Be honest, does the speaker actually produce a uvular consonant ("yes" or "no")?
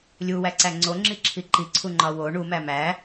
no